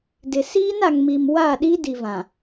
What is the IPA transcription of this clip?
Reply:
dɪ˨ siː˦na˨ŋmi˨m wa˦˨ɗi˦ di˨vã˨

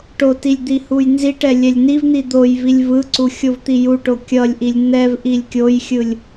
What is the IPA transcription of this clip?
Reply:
ʈotilʲ d̪ihujnziʈɛ lʲɛlʲnivn̪i d̪ojvilʲ vɯǀu xʲovt̪ijuʈo kʲʌlʲʔilʲ n̪ɛv ʔilʲkʲojxʲɯlʲ

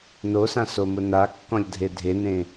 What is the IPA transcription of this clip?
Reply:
nosãsomʊ nakːɔ̃lʲ dʱedʱenẽ

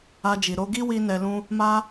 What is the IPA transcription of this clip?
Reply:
a˧d͡ʒi˨ ɾo˧ ɡi˦wi˧ nɛ˧lũ˦ | ma˦

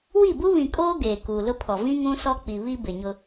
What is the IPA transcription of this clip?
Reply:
wi˦˨bu˦ βĩ˨kʼoː˦ ɡeː˨kuː˨lʊ˦pʰɔ˨ vĩ˦ ŋũ˦sɔ˦k͡pi˨ βi˦ bɪ˨ɲʊ˦

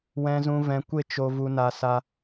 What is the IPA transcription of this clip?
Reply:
wɛ̃˧zũ˧vɛ̃˧ kʷe˦t͡ʃo˧ vu˧na˧sa˧

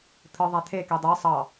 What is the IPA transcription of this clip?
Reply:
t̪ʰɯ ðˤæt̪ʰe kidˤe sˤɑ

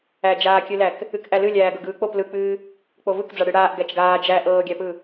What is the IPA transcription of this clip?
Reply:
æd͡ʒaːkʲɨlæk | ɨkʔælɨ lʲæːɡɤɡɯːk͡pop lɯk͡pɨː | k͡povɯkd͡za ɽɨɽaːʔ ɡæt͡ʃɡaː d͡ʒæ ʔɤːɡʲæpɯ

